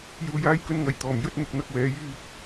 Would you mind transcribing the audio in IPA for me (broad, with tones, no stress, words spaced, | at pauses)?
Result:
juː˧jaː˥jkɵ˥nŋɐ˨j t̪ɔː˨˩mjɵ˥t̚ n̪ʊ˧k̚n̪ɐ˥k̚wɛː˨˥ jyː˧k̚